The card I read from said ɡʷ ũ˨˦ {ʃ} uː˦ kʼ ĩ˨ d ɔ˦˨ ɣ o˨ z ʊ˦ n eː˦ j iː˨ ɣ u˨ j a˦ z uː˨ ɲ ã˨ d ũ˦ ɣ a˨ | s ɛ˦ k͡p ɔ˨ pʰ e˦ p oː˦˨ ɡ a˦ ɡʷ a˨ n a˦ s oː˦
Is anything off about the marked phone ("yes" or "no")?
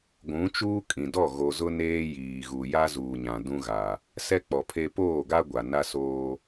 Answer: yes